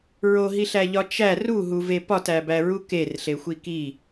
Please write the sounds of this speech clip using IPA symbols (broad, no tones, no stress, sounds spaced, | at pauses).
ɹ o ɦ i ɬ æ ʎ ɒ t͡ʃ æ r u ɦ u v e p ɒ t æ b æ ɹ u k e r ɬ e xʷ i k i